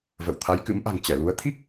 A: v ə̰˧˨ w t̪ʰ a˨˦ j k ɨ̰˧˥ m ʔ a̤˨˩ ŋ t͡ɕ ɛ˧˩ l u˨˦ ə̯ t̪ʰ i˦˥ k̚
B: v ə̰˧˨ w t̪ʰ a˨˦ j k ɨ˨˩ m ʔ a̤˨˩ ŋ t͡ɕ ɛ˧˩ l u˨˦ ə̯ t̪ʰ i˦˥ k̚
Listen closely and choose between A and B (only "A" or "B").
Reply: A